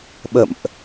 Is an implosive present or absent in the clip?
present